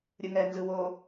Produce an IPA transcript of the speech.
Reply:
ɾʲ ɯ ŋ ɛ n z ɯ w o

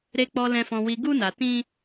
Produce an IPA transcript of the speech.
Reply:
ɾ e˨ k͡p ɔ˨ l ɛ̃˨ f ɔ̃˨ w i˨ ɡ u˧ n a˨ t ĩ˧

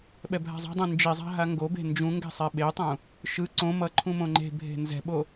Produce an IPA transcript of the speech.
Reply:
ɓ ɛ bʱ a̤ zˤ a̤ dˤ ũ n d͡ʒ i zˤ a̤ ɦ a ŋ ɡ o b e̤ n d͡ʒ ũ ŋ ɡ ɛ̤ sˤ ɛ ɓ e tˤ ũ | ʃ ɯ ǀ õ m ʌ ǃʰ ũ m õ ŋ͡ǃ e̤ bʱ e̤ n z ɛ̤ ɓ o

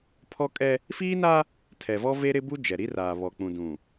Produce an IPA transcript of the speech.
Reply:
pʰ ɔ˦ kʼ ɛ˦ | f iː˦ n a˦ | tʰ ɛ˨ v ɔ˦ v e˦ ɾ ɪ˦ b u˦ d͡ʒ ɛ˨ ɾ i˦ r aː˨ β ɔ˨ k͡p ũ˨ d ũ˨

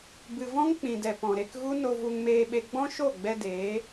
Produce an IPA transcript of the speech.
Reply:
b ɨ˨ v ɔ̃˦ ŋ k͡p ĩ˨ d ɛ˨ p ɔ̃˨ ɾ e˧ k ɣ u˦ n o˧ v u˧ ŋ m eː˧ ɓ e˧ ɡ͡b ɔ̃˦ ʃ o˦˨ ɡ͡b ɛ˧ d eː˨˦

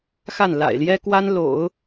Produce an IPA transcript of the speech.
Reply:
x a˥˩ n l a̰˨˩ ɪ̯ l j ɛ˥ k w a˥ n l o̰˨˩˦ ʊ̯

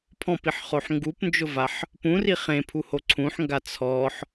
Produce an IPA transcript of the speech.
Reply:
pʰ ɔ̃ p i ħ χ o ħ ŋ ɡ u p n d͡ʒ ʊ v a ħ | p ũ r i χ ẽ pʰ u h o ǀʰ ũ ħ ŋ ɡ a t͡sʰ ɔ ħ

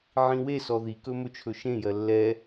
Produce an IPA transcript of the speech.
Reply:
ʕ ĩ w e s ɔ ð i k ɵ m ɵ t͡ʃʰ ɵ ʃ ẽ j ɜ lː ɛ

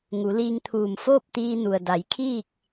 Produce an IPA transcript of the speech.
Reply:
ŋ u˩˧ l iː˧ ŋ t̪ʰ uː˧˩ m f oː˥˨ p̚ t̪ iː˧ n u˩ ə̯ d a˩˧ j kʰ iː˥˨ k̚

